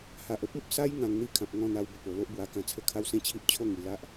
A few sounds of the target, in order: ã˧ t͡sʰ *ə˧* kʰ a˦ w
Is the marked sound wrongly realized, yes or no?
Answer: yes